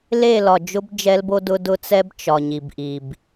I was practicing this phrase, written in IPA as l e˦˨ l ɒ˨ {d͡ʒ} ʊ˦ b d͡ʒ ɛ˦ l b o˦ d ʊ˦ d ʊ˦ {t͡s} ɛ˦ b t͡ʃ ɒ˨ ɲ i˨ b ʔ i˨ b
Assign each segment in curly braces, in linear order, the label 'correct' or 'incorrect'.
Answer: correct, correct

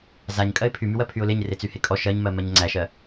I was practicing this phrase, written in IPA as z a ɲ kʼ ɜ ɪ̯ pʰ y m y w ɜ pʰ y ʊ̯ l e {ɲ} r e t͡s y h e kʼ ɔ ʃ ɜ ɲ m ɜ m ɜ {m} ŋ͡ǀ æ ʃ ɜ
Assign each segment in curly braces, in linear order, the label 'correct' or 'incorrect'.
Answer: correct, incorrect

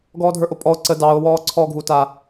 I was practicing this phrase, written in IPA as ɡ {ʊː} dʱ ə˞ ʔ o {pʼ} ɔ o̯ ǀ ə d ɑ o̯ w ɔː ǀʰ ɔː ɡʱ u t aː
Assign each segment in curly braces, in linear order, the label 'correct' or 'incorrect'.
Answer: incorrect, correct

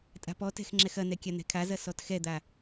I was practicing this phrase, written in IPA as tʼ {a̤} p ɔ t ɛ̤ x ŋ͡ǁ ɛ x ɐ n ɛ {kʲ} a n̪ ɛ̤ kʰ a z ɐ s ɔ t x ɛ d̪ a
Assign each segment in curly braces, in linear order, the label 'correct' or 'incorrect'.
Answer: correct, correct

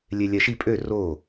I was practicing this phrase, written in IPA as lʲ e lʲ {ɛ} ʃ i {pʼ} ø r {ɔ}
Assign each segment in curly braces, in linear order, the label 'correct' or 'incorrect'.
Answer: correct, correct, incorrect

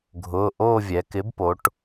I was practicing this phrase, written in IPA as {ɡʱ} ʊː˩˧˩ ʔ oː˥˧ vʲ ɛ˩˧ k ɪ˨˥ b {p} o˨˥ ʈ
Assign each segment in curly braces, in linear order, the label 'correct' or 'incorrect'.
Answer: correct, correct

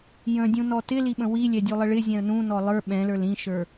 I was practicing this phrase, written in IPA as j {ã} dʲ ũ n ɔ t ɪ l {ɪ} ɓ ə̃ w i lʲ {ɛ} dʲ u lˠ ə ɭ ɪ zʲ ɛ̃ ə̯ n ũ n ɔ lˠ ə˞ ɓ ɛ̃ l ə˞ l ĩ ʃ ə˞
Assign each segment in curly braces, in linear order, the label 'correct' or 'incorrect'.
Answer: incorrect, incorrect, correct

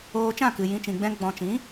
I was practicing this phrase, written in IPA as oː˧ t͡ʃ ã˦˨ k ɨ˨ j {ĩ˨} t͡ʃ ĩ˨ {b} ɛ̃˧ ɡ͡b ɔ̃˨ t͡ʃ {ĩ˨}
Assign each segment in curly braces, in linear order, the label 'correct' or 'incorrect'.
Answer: correct, incorrect, incorrect

